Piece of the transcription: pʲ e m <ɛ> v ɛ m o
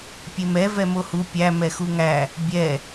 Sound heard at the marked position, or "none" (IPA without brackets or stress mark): ɛ